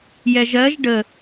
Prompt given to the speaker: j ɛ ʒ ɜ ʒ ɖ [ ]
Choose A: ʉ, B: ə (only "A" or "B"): B